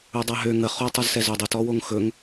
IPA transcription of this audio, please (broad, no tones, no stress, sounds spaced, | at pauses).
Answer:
ɵ dˤ a ɦ ø ŋ ə χ o tˤ ø z s ɛ z ø dˤ ə t ɔ w o ŋ x ɵ ŋ